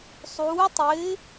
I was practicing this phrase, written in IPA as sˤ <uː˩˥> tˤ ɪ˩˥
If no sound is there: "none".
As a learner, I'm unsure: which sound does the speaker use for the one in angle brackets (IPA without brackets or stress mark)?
uː˩˥